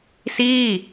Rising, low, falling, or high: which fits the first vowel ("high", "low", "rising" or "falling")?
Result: falling